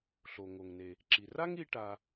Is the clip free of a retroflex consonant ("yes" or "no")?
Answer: no